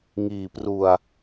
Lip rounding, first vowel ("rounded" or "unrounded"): unrounded